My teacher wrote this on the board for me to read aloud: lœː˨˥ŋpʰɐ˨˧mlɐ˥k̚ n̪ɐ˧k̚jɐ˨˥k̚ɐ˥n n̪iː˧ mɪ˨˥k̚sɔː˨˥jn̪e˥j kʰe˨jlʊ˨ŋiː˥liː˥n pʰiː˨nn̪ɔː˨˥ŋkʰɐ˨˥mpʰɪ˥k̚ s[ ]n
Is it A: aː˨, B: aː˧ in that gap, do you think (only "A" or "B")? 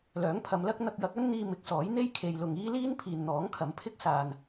A